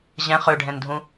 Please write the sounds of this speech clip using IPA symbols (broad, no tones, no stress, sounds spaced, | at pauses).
ʑ ɛ̃ χ ø ɖʱ ɛ̃ n dʱ ũ